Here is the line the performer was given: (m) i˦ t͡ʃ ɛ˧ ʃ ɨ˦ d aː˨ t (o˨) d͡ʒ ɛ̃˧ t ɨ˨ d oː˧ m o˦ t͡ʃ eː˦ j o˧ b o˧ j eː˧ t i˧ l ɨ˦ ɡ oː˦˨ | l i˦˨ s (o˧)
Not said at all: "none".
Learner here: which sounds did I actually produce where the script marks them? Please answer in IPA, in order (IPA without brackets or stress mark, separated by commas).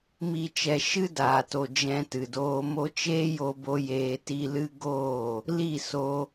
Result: m, o˨, o˧